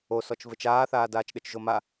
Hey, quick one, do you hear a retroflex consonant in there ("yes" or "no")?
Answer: no